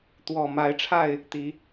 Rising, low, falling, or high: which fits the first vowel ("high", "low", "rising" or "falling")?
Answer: low